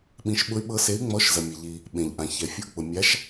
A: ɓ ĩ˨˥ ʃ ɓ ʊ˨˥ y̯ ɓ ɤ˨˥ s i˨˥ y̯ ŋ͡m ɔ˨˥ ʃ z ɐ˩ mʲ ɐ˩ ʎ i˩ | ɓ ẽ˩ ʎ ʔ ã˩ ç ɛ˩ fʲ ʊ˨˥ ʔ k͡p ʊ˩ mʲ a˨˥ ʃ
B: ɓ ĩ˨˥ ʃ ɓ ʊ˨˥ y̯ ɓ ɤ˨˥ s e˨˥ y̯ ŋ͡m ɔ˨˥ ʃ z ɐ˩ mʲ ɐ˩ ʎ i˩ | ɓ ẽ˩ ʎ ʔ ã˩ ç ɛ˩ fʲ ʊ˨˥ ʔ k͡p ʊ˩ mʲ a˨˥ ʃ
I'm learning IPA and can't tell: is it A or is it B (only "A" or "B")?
B